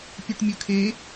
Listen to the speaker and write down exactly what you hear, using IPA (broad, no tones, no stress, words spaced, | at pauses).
pʲʉʈmʲɵkʰe